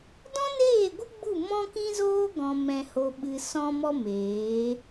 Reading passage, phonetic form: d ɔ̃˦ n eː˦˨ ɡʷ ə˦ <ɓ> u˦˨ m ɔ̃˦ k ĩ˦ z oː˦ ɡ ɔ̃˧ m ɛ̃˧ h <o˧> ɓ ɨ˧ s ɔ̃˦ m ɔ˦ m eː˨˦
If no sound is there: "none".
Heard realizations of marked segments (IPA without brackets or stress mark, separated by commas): ɡ͡b, o˧